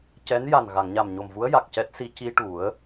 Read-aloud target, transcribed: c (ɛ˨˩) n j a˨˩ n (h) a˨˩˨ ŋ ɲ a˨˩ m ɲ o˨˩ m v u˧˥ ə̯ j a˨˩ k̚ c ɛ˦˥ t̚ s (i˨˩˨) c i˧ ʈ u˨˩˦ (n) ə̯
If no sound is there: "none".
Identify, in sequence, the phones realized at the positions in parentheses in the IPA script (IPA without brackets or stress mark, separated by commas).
ɛ˧˥, ɣ, i˧, none